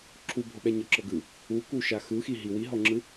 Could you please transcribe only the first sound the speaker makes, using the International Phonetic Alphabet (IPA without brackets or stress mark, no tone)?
ǁʰ